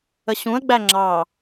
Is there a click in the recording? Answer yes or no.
yes